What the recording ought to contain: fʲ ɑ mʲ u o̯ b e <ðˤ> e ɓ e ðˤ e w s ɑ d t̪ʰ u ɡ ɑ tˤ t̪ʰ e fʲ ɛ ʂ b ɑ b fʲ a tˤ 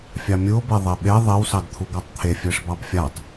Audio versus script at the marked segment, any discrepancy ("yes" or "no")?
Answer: no